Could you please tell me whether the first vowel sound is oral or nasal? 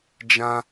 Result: nasal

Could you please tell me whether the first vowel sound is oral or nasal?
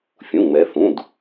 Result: nasal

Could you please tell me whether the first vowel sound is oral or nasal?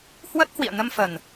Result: oral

